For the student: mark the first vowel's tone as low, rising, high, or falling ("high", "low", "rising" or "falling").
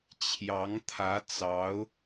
rising